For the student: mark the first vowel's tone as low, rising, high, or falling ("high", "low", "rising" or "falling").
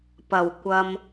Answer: low